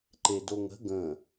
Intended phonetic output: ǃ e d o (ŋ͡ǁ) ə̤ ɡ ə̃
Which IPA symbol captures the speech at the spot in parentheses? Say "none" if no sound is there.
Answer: ŋ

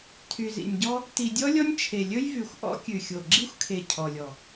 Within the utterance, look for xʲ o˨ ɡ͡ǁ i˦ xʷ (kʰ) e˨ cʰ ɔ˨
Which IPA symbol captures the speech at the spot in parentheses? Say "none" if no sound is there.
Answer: kʰ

